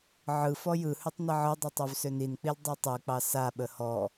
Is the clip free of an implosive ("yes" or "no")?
no